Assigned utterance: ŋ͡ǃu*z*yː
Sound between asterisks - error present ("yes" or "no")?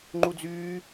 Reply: yes